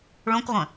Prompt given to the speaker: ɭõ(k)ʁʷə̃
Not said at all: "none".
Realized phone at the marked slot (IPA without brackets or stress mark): k